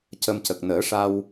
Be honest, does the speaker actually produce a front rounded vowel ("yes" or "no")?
no